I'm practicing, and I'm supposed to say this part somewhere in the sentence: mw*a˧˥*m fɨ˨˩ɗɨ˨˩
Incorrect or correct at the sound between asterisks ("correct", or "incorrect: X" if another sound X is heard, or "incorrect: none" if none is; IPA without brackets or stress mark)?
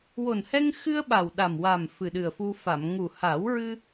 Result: incorrect: a˨˩